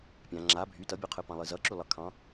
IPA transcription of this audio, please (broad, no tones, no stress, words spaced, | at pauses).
pʲã ŋ͡ǁa bʱy tʌbʲoqʰɨpɑ̃ lˠɨzʌ ǁylˠʌkʰɑ̃